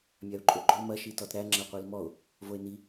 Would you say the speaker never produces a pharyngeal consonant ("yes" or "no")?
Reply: yes